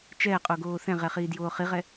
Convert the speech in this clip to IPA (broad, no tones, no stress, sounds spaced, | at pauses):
t͡ʃ ɛː qʼ o ɡ oː θ ɛ̃ ʁ ɛ χ iː d j oː χ i ʁ ɛ